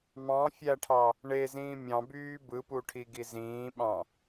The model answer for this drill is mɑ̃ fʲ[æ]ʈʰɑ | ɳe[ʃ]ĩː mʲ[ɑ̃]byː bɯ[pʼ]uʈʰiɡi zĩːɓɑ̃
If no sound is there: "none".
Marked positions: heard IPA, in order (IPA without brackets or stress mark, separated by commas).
æ, z, ɑ̃, p